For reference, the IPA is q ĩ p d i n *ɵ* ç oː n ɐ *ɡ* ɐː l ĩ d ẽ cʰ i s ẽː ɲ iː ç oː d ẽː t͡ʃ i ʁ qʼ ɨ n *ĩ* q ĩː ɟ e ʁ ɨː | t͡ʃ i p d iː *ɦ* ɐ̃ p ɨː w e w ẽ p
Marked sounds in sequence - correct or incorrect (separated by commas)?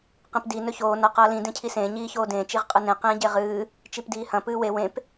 correct, incorrect, incorrect, incorrect